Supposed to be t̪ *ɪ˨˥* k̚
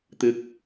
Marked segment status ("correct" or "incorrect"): correct